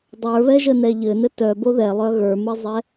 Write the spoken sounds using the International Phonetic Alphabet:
dˤə˞βɛʒənɛ ʎɘnɘ tœbo ðɛlˠœ ɣə˞mɘzˤɛ

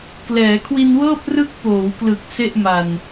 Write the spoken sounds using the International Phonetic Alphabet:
klɛː˩˦kʰwi˧nwɤː˥˩p̚ rɯ˦˥k̚poː˩˦wklɯ˨˩k̚ se˥˩ʔ ma˨˩n

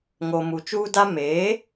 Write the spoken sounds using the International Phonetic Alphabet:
ŋo˨ mu˨t͡ʃuː˦ da˦ meː˨˦

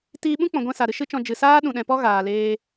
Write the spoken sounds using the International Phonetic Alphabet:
tiː˧ɓũ˦k͡pɔ̃˨ɡʷɛ̃˧ sa˨ɾɨ˧ʃɨ˦t͡ʃɔ̃˧ d͡ʒɨ˨saː˦ ɗũ˨ɗɛ̃˨pɔ˦ ɣaː˨leː˧

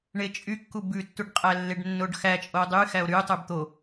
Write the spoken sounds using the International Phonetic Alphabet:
ɳet͡ʃʼykːu bʉtːuɖqʼælːeɖ nːoɖxæ t͡ʃʼodˤy xæo̯ɾy tˤybt̪o

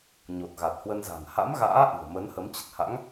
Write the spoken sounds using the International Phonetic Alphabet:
ɲo˨˩t̚ɣa˨˩t̚hwə˧nza̤˨˩n ha̰˧˥mɣa̰ː˧˥ ʔɨ̤˨˩ə̯ mə˨˦nhə˨˦m t͡ɕə˨˩t̚ha̰˧˥ŋ

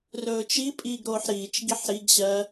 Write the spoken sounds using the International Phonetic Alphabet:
rɵːt͡ʃipʼiːɡɾoːħ ɾiːt͡ʃɡiħ ɾiɡɕɜ

